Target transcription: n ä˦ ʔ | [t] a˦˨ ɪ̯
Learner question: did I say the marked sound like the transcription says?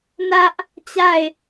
no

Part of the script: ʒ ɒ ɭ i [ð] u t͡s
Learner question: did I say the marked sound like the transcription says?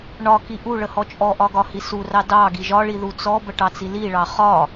yes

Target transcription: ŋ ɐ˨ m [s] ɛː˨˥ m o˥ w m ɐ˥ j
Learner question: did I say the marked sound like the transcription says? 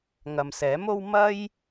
yes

